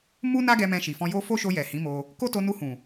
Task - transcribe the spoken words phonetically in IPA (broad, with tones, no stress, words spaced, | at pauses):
mu˦na˦ɡɛ˧ mɛ̃˧ʃi˨fɔ̃˧jo˦ fo˦ʃo˧ jɛ˨hĩ˨˦mo˧ | ko˦to˧ nu˧hũ˨